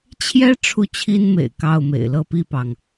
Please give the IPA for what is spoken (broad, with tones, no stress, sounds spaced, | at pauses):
t͡ɕʰ j ɛ˥ ʈ͡ʂʰ u˥˩ t͡ɕʰ i˥ n m ḛ˨˩ ɪ̯ k ɑ˥˩ ʊ̯ m ḛ˨˩ ɪ̯ l ɤ˥˧ p i˥˩ p ɑ˩ ŋ